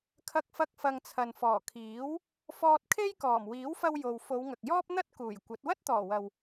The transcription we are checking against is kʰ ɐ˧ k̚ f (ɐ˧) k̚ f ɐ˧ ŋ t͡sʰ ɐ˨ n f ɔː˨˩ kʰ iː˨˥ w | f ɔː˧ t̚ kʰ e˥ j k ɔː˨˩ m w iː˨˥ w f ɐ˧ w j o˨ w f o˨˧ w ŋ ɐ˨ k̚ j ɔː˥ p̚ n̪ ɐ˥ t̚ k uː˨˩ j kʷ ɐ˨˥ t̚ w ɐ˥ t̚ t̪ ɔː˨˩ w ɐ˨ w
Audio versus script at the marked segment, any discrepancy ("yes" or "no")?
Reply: no